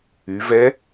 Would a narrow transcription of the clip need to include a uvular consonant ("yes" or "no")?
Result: no